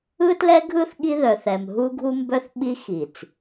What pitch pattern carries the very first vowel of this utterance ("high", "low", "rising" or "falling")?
high